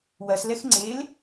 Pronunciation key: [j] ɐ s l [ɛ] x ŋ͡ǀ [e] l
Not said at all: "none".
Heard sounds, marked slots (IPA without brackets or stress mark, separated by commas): w, ɛ, e